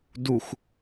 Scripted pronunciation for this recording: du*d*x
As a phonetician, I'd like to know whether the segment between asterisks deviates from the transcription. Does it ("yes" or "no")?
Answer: yes